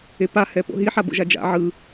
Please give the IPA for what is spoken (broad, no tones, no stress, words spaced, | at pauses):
epa hɛpo̰ɦi ħabo̰ʒad͡ʒa̰ ʕɯ